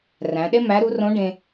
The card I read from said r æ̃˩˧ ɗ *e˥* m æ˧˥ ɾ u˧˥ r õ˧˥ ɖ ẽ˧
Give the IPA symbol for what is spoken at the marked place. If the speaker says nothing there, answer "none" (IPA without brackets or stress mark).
e˥